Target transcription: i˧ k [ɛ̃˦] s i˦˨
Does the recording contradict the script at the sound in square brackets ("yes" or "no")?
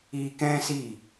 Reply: no